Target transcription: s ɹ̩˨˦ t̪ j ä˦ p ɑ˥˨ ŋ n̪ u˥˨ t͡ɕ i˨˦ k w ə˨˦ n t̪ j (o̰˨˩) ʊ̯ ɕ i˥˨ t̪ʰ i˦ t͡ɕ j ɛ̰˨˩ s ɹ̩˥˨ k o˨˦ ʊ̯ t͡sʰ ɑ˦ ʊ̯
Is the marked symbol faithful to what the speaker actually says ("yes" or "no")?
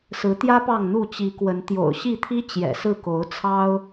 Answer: yes